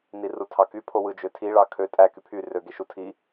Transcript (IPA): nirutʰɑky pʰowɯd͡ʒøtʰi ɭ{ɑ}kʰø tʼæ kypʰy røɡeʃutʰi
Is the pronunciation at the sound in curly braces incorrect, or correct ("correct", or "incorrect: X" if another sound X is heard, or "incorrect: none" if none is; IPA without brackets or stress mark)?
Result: correct